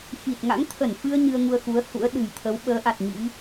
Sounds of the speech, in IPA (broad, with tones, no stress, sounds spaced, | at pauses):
x i˨˩ t̚ ŋ a̰˧˥ ŋ t̪ʰ ə˧˩ n f ɨ˧ ə̯ ɲ ɨ˧ ə̯ ŋ u˧ ə̯ x u˨˦ ə̯ h ṵ˧˥ ə̯ ɗ ɨ̤˨˩ j t̪ʰ ə˨˦ w ɓ əː˨˦ ʔ a˨˩ t̚ ɲ ḭ˧˥